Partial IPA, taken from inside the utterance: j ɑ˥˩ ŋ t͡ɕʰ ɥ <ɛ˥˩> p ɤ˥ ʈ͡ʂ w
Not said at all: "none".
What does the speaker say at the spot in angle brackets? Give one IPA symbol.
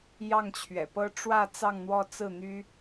ɛ̰˨˩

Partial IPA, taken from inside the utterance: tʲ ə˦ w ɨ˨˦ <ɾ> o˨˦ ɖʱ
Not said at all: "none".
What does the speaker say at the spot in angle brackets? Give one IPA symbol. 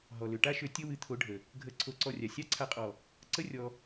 t̪ʰ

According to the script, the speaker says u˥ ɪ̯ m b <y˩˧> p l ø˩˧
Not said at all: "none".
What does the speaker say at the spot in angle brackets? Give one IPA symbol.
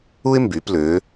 y˩˧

